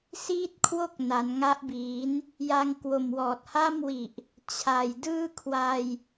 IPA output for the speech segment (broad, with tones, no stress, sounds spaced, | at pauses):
s iː˥˩ t̚ kʰ w o˥˩ k̚ n a˩˦ n ŋ a˦˥ ʔ b iː˩˦ n | j a˧ ŋ k w o˨˩ m w ɔː˨˩ t̚ h a˥˩ m w i˨˩ ʔ | t͡ɕʰ a˨˩ j d ɯː˥˩ kʰ w a˧ j